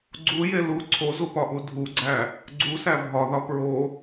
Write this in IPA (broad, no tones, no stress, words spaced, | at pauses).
ɡ͡ǀuje lu ǀʰozupɒʔu dʱuɡ͡ǀæ | ɡ͡ǀusæ bʱɒðɒ pɹo